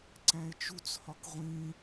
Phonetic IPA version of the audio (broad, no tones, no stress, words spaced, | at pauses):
ǀæ̃e̯t͡ʃut͡shɒk ʁʷĩ